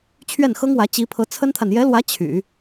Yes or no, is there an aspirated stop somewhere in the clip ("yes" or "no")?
yes